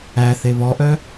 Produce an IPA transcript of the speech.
æ θ e β ɔ ʔ œ

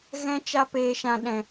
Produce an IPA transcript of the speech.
ɣ ɛ̃˦ t͡ʃ a˦ p eː˧ ʃ ã˦ ɗ ɛ̃˧

